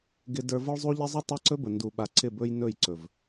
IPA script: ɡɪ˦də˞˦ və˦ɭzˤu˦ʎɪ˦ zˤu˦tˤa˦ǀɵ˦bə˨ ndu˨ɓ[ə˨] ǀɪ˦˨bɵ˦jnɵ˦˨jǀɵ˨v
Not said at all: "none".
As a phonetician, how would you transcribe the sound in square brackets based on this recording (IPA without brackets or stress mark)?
a˨